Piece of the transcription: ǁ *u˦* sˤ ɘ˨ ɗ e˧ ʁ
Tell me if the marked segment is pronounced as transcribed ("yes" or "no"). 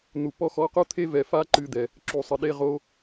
no